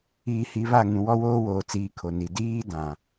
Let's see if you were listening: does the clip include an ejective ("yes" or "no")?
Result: no